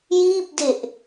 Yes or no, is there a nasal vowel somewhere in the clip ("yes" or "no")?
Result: no